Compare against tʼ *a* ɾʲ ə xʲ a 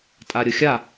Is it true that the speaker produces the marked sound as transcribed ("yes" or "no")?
yes